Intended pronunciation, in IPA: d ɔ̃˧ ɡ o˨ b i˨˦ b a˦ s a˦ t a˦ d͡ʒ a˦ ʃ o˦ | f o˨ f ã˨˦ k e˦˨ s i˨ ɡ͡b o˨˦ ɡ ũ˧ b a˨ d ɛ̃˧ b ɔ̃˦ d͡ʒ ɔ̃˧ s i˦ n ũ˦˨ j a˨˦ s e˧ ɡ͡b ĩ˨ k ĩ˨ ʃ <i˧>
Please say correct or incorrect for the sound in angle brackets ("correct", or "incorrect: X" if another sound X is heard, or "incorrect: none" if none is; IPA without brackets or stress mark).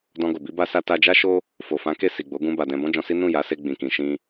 incorrect: ĩ˧